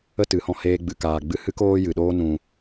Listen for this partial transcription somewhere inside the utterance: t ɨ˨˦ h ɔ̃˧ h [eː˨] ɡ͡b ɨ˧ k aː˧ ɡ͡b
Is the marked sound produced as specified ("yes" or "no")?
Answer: no